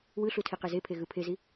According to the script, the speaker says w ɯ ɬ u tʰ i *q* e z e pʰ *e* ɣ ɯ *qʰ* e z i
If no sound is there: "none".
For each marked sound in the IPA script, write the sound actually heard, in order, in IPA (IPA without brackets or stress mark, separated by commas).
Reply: q, e, pʰ